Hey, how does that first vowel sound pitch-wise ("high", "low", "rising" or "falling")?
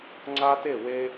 high